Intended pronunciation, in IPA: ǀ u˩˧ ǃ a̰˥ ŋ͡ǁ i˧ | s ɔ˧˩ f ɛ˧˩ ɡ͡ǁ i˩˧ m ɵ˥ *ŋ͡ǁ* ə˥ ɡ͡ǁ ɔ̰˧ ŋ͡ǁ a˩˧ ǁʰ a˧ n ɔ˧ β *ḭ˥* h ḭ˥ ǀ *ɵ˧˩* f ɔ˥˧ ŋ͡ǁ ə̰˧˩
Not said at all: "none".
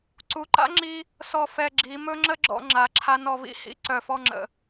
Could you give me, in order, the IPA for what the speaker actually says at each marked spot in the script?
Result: ŋ͡ǁ, ḭ˥˧, œ˧˩

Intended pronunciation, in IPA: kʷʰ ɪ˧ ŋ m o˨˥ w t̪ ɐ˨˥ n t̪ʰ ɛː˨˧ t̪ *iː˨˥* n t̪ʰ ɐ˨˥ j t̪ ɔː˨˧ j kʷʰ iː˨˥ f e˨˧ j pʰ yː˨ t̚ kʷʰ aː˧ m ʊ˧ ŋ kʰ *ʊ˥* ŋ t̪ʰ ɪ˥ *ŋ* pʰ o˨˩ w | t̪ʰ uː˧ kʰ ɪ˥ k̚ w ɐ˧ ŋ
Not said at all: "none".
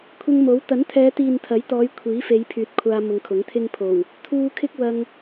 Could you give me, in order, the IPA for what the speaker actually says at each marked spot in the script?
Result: iː˨, ʊ˨˥, ŋ

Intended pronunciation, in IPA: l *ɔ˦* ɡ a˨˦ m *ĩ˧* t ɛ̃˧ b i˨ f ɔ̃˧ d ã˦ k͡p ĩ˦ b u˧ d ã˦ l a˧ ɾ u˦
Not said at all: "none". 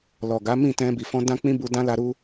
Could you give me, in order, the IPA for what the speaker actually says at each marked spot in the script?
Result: ɔ˨, ĩ˦˨

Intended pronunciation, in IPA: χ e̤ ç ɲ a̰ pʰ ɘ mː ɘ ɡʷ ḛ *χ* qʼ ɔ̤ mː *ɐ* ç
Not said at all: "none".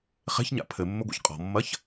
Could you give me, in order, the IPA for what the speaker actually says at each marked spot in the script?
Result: ç, ɐ

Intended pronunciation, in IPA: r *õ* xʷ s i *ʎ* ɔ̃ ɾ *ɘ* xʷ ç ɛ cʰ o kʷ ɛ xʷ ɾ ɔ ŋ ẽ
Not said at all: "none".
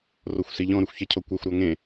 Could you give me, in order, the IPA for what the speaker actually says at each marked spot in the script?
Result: o, ʎ, ʉ

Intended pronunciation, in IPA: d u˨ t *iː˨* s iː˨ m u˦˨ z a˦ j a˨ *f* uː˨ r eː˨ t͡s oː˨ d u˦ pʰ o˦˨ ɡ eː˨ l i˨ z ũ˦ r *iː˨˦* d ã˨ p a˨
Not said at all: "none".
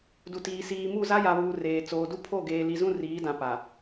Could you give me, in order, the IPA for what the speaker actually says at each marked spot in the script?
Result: iː˨, β, iː˨˦

